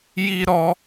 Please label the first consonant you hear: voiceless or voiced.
voiced